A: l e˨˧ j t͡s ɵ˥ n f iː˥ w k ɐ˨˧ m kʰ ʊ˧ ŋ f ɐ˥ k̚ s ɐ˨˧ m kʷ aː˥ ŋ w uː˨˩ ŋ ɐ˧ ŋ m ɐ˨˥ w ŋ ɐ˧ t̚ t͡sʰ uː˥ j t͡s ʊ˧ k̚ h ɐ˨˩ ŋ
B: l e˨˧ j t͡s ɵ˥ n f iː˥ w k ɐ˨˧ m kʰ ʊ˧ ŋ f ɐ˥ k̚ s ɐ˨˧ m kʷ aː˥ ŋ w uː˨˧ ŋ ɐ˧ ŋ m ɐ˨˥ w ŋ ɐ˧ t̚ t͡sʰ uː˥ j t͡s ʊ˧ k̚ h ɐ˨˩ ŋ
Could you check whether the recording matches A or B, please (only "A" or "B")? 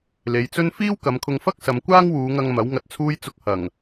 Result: B